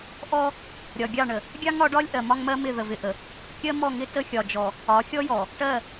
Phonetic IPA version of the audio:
ʔ ɔ˦ | ɾʲ ɒ˨ ɡʲ ɑ˦˨ ɳ ə˨ | ɡʲ ɑ˦ ŋ ɒ˨˦ ɖ ɒ˦ lʲ ʔ ɜ˨ m ɒ˦ ŋ m ɜ˦ m ɪ˦˨ ð ə˨ v ɪ˨ ʔ ə˨ | kʲ ɜ˦ m ɔ˦˨ ŋ ɪ˦ t ə˦ xʲ ɒ˨ d͡ʒ ɔ˨ | ɒ˨˦ xʲ ɔ˦ j ɔ˨ | ʈ ɜ˦˨

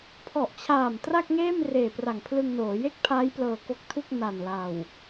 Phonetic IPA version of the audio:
pʰ ɔ˨˩ ʔ t͡ɕʰ aː˨˩ m t r a˥˩ k̚ ŋ eː˥˩ m r eː˨˩ p r a˨˩ ŋ pʰ l ɯ˧ ŋ n oː˩˦ j e˥˩ k̚ pʰ aː˦˥ j p l ɤː˧ k o˦˥ k̚ tʰ u˥˩ k̚ n a˨˩ n l a˨˩ w

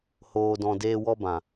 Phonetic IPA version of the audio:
h oː˧ d ɔ̃˧ d eː˧ w ɔ˧ b ã˨

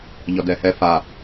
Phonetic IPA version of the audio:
ʎ ɔ d ɛ h ɛ f a

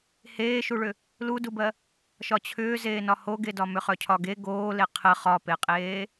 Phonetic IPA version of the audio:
h eː ʃ u ɭ ʏ | l u d u b ɜ | ʃ ɒ t͡ɕʰ ʏː z eː n ɒ h o ɡ e d ɒ m ʏ χ œ cʰ ɒ ɡ e ɡ oː l e qʰ ə χ ɒ p e qʼ eː

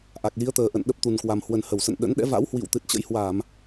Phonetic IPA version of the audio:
ʔ a˨˩ k̚ l i˨˦ ə̯ t̪ əː˨˩ ʔ ə̰˧˨ n ɗ ə˦˥ p̚ t̪ u˨˩ n k w a˨˩ m h w ə˨˩ n h ə˧˩ w s ə̰˧˨ n ɗ ə̰˧˥ n ɗ ɛ̰˧˥ v a̰˧˥ w h w ḭ˧˨ w t̪ ɨ˨˩ t̚ t͡ɕ ə̰˧˥ j h w a˧˩˨ m

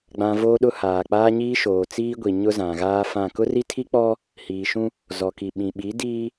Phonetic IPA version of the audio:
ɡ͡b ã˨ v oː˦ ɗ ʊ˦ h aː˨ k͡p aː˦ ɲ iː˦ ʃ oː˨ t͡s iː˦ ɡʷ i˨ ɲ ʊ˦ z ã˨ ɣ aː˦ f ã˦˨ k ʊ˦ r i˦ tʰ i˦ k͡p ɔ˦ | h iː˨ ʃ ũ˦ | z ɔ˨ k i˨ ɓ ĩ˨ ɓ i˨˦ d iː˦

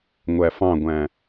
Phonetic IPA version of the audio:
ŋʷ æ f ɑ̃ ɡʷ æ̃

